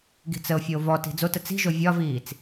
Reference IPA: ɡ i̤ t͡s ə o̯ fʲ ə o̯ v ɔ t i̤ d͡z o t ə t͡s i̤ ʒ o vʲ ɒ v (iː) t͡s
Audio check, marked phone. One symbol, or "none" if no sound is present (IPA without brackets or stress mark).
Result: iː